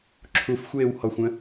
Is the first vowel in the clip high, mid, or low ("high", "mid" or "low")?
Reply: high